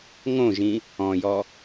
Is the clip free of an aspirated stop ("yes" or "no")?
yes